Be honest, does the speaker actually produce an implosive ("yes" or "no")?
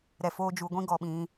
yes